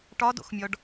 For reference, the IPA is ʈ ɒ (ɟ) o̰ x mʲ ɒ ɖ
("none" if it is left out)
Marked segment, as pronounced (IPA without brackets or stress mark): d